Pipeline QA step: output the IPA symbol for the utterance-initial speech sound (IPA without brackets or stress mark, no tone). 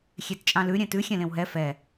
xʲ